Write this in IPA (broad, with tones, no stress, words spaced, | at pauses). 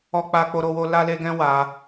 ɔ˦k͡pa˦k͡po˦ɾo˦ wo˦ la˦le˦ ɡɛ̃˦wa˧